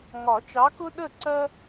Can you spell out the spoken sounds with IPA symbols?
ŋɒ˨˩˦t͡ʃɑ˨˦kʊ˦ ɗə˥˩ǀɜ˦

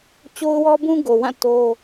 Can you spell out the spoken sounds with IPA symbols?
t͡ɕo˦ʊ̯wɔ˦bũ˦ ɡo˨wã˦˨ to˦

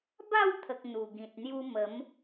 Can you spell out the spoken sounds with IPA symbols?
ba˥˧wt̪ʰə˨k̚ n̪u˨˩ɡĩ˨t̚ n̪ju˧mə˨˦m

